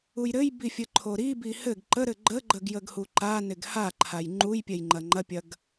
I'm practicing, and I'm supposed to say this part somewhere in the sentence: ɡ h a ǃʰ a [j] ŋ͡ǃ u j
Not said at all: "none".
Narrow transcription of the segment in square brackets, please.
j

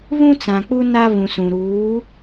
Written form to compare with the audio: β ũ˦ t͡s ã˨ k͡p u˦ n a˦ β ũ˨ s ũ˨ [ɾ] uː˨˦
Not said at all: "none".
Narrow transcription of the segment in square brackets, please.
ɾ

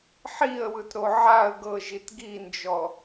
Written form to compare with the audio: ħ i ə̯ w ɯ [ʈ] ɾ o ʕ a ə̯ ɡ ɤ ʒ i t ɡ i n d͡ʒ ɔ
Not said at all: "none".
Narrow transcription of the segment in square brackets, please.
t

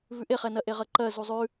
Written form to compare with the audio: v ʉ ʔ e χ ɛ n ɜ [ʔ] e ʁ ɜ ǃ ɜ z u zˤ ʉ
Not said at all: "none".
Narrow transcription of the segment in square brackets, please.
ʔ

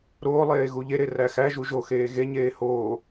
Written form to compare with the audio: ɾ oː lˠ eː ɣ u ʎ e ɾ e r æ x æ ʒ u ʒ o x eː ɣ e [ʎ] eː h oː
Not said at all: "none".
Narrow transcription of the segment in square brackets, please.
ɲ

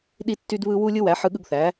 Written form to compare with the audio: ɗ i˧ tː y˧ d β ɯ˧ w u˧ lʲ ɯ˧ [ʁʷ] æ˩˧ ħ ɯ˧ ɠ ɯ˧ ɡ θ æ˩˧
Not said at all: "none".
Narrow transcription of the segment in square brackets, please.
w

